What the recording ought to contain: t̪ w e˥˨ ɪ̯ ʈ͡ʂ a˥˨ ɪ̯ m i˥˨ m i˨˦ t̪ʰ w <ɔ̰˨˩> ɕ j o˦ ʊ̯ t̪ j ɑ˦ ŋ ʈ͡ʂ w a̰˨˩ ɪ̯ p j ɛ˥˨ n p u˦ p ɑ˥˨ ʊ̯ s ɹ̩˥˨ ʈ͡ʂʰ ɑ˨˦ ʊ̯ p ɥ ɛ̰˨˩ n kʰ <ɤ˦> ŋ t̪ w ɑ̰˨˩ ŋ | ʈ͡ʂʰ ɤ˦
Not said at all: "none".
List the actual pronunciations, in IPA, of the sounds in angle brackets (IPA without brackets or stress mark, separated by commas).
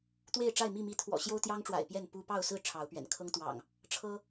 ɔ̰˨˩, ɤ˦